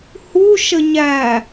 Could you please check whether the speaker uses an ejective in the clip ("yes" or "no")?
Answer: no